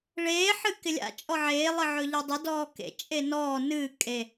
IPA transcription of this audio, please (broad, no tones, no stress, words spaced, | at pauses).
ɭeː ħɨkɪlʲa̰ t͡ʃʼɔʕeː lˠɨʕɵʎedˤɪ dɔːkḛ t͡ʃʼenɔː nɨː kʼe